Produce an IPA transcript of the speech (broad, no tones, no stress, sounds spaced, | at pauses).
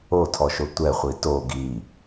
o tʰ ɔ ʃ o tʷ ɛ χʷ i t o ɡ i